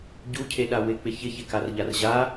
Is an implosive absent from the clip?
no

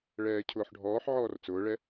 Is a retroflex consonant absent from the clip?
no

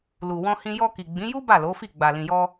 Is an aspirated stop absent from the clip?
yes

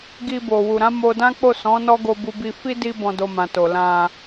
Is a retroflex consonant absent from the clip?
yes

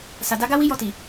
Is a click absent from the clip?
yes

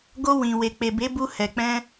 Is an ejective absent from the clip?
yes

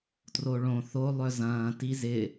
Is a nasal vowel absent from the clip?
no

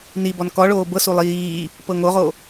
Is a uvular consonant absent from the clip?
no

